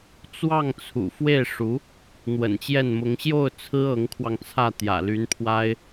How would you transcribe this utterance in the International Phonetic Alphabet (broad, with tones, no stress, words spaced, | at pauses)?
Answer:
t͡swɑ˥˩ŋt͡sʰṵ˨˩ fwe˥˩ɪ̯ʂu˧˥ | n̪wə̰˨˩nt͡ɕjɛ˥˩nmʊ˧˥ŋ ɕjo˥˩ʊ̯ t͡sʰɹ̩˥ɤ˧˥ŋkʰwɑ˧ŋt͡sʰä˥˩ t̪jä̰˨˩ly˧˥npʰwa˥ɪ̯